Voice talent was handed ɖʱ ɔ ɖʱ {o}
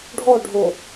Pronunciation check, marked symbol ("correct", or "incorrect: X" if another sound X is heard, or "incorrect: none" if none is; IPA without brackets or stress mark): correct